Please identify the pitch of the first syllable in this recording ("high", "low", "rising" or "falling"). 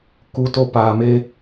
rising